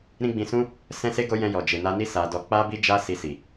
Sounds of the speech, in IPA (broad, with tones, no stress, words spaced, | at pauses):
ɾĩ˦ɡ͡bĩ˧sũ˦ | sɛ̃˦se˦ɡo˦ jɛ̃˧jɔ˨ d͡ʒe˨na˧ni˦ sa˧ dɔ˧ k͡pa˦bi˦d͡ʒa˦ si˧si˨